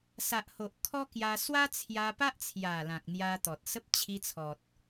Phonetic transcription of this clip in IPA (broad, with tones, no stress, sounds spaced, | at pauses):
s a˨ ʔ h o˨ ʔ kʰ ɔ˦ k j a˧ s w a˦ t͡sʰ j a˧ p a˦ ʔ t͡sʰ j a˨˩ l ã˨ k̚ n̪ j a˧ t̪ ɔ˨ t̚ s ə˦ p̚ t͡ɕʰ i˧ t͡sʰ ɔ˨ t̚